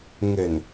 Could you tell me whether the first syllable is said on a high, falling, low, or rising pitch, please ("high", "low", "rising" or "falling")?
low